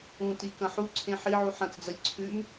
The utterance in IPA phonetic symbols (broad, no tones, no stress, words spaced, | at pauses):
ũtikɐ̃ ħuǀʰẽ ħiʕu ħɐ̃t͡sd͡zɐlʲ ǀʰʉm